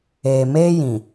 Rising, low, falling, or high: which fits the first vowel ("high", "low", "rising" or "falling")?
low